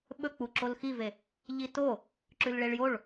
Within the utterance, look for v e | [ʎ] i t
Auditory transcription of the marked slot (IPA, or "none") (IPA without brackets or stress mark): ʎ